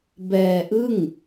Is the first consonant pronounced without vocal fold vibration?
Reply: no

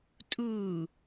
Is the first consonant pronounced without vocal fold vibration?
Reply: yes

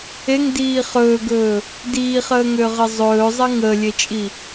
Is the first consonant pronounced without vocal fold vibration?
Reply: no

